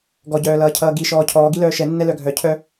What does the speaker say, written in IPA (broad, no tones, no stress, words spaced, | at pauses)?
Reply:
ɡɔɟœːlʌːcʰʌː ɡi ʃɔːcʰɔː ɡilœːʃɛnːɛ lœɡʱœcʰœ